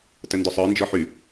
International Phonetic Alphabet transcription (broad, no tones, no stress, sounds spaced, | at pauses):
t ə n d ʊ sˤ ə˞ n d͡ʒ ɔ ħ y